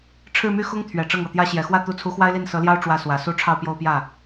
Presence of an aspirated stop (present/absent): present